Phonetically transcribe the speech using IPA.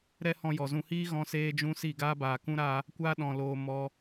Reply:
ɾ ɛ˦ h ɔ̃˧ j ɔ˨ z ũ˧ h iː˦ ɣ ɔ̃˧ s eː˧ d͡ʒ ũ˧ s i˦˨ ɡ aː˦ b aː˨ k ũ˦ ɾ a˧ | kʷ aː˧ ɗ ɔ̃˨ l oː˧ m ɔ˧

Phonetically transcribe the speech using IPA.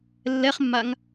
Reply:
lː ɛ χ mː a ŋ

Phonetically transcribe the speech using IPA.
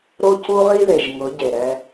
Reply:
ɾ o˦ c u˦ ʁ i˦ ð e˨ ʒ ŋ ʊ˨˦ ɟ e˨ ɾ ɛ˦

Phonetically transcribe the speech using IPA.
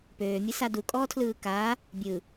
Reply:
p øː mʲ ɯ s a d u kʼ ɔː tʰ l ɯː k aː | bʲ ɯ

